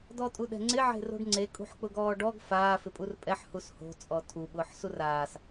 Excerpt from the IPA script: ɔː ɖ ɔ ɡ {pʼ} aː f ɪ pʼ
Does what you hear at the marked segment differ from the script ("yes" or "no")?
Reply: yes